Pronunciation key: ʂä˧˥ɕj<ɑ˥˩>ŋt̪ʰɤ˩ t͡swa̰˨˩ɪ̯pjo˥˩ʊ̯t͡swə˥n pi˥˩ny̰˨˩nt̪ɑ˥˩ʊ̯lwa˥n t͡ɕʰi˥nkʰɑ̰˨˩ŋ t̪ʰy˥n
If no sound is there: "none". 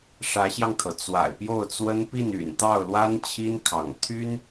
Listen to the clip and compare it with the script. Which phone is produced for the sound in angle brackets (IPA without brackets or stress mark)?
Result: ɑ˧